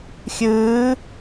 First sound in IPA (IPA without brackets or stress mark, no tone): xʲ